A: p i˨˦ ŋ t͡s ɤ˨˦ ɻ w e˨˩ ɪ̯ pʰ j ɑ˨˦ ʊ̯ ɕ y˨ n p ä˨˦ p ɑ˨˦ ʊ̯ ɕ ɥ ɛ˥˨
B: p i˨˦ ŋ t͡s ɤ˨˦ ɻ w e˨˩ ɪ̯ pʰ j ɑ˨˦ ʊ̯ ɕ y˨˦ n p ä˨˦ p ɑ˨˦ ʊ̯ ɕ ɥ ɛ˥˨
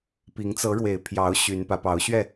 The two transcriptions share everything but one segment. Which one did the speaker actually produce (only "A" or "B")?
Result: B